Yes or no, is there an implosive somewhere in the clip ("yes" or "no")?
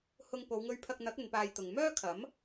no